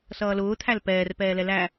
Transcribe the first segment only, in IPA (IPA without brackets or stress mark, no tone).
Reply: s